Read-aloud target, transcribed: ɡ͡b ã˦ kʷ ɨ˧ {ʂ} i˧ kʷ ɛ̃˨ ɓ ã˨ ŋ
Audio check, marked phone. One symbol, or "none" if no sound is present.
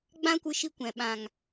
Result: ʃ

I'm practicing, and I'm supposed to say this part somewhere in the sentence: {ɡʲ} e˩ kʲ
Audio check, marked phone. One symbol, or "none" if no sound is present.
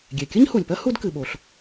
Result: ɡʲ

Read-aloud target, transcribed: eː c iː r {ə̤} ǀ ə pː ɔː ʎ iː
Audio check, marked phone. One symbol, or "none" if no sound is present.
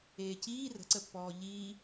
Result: ə̤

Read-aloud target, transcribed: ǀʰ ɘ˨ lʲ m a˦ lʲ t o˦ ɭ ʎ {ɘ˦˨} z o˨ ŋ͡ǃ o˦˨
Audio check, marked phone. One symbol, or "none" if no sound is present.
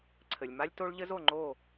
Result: ɘ˦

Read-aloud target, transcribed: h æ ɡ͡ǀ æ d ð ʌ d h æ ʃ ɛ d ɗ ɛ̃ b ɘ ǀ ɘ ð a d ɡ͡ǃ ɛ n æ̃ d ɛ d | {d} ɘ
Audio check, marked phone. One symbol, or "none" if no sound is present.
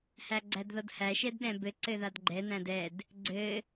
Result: ɡ͡ǀ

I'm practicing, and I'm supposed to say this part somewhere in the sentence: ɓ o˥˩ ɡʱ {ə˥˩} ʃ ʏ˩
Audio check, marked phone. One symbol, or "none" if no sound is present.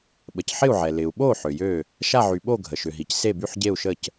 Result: ə˩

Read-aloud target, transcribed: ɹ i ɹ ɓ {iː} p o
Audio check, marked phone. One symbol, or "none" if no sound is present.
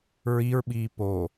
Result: iː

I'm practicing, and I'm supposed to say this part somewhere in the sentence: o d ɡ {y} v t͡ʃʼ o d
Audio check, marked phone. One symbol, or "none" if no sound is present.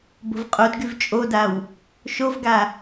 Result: y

